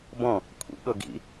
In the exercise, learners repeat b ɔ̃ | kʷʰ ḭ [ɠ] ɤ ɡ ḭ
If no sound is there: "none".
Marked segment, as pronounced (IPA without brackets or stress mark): ɠ